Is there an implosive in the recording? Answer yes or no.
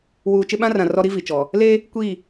yes